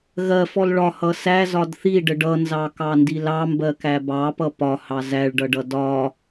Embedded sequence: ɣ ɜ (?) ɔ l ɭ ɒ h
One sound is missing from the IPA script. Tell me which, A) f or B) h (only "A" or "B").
A